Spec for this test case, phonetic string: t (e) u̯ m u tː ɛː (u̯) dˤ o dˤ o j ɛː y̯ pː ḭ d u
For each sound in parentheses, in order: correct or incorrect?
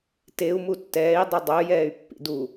correct, incorrect

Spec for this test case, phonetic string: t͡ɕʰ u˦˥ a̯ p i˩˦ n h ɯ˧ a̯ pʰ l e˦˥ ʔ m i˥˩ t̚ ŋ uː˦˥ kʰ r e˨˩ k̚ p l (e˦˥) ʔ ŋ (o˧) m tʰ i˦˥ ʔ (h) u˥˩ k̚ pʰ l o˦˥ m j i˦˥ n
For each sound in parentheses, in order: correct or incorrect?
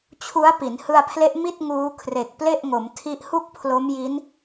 incorrect, incorrect, correct

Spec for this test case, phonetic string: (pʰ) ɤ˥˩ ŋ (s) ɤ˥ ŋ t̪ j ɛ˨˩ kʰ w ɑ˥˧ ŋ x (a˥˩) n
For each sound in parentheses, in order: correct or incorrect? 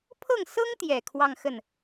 correct, correct, incorrect

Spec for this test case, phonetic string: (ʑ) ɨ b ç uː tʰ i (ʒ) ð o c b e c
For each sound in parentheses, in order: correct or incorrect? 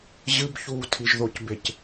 correct, correct

